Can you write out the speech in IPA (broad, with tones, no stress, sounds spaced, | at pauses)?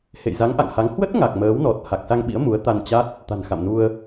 h ḛ˧˨ j z a˨˦ ŋ ʔ a̰˧˨ ŋ h a˨˦ ŋ h w ə˦˥ t̚ ŋ a˨˩ k̚ m əː˨˦ w n ɔ˨˩ t̚ h a˨˩ k̚ s a˧ ŋ ɓ ḭ˧˥ ə̯ m u˨˦ ə̯ t̪ a˧ n t͡ɕ a˦˥ t̚ | t̪ a̤˨˩ n x a̰˧˨ m n u˧ ə̯